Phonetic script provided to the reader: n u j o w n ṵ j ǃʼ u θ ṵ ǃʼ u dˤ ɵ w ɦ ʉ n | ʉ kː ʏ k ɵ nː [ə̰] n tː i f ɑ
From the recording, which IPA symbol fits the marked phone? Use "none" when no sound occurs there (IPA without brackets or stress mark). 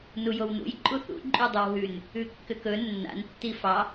a̰